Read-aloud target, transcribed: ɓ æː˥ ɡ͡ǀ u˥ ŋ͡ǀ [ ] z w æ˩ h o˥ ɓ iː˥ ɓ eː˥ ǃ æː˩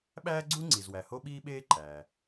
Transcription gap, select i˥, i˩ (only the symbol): i˩